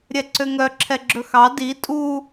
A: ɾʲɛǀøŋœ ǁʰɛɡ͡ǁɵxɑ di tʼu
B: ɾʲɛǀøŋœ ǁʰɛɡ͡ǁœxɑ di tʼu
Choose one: A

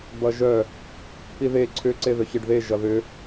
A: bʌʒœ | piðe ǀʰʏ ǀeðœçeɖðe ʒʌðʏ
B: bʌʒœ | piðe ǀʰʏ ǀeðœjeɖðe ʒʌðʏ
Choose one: A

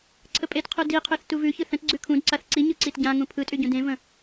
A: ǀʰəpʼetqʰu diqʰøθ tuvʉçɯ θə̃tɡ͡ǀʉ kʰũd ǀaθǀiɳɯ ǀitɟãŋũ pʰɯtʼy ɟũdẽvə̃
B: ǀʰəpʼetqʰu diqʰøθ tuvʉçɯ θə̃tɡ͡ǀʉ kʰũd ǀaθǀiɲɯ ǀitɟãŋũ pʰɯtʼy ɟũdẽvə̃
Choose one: B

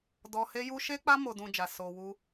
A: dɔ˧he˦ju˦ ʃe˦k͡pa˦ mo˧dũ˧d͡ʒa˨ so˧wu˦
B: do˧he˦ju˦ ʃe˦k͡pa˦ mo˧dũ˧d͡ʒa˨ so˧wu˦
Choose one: A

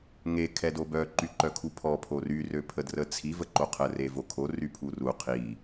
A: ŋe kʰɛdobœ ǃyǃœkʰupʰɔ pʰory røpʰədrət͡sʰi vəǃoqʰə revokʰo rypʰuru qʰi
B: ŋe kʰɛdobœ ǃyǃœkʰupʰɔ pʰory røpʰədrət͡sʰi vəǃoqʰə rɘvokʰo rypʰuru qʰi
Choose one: A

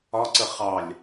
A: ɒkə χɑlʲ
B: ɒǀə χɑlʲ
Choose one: B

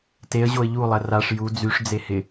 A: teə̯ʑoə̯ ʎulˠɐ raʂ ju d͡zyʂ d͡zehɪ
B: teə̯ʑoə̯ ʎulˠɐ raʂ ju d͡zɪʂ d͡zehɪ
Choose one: A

